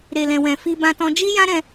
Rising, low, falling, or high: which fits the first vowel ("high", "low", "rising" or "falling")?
low